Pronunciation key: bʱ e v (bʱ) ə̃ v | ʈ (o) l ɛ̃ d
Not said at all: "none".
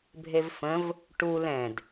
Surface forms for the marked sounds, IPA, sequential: f, u

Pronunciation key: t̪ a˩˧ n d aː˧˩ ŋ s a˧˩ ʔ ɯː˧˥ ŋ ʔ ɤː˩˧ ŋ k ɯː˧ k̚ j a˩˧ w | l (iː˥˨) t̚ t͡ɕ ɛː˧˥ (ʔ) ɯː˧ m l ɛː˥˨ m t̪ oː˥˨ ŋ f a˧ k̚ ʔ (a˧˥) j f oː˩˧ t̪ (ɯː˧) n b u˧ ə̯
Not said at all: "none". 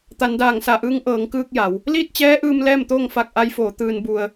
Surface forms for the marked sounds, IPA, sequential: iː˥˨, ʔ, a˧˥, ɯː˧

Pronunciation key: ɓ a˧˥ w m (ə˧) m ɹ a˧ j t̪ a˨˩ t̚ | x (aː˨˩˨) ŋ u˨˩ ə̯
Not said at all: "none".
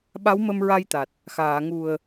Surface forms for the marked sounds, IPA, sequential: ə˧, aː˨˩˨

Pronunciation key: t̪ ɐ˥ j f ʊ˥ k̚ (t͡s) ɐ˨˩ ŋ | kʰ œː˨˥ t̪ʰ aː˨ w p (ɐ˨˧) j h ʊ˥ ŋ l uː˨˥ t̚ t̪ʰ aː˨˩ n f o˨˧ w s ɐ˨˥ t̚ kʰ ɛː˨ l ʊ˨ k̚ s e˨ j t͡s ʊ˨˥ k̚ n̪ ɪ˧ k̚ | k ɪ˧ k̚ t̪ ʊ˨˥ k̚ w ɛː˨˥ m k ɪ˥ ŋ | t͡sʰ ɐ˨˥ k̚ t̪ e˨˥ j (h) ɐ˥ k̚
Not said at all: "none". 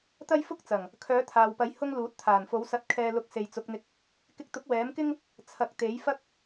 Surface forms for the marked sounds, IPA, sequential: t͡s, ɐ˨˥, f

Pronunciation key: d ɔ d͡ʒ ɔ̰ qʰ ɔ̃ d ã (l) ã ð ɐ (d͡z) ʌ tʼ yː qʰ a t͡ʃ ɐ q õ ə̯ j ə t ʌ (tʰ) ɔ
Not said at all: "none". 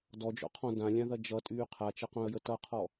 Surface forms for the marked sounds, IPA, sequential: lʲ, d͡ʒ, qʰ

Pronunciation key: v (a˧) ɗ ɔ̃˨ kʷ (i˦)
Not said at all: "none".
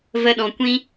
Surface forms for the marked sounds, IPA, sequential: ə˧, ĩ˦

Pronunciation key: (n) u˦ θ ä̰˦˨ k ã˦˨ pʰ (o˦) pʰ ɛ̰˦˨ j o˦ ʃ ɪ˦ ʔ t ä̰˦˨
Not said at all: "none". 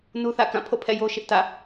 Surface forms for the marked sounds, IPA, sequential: n, o̰˦˨

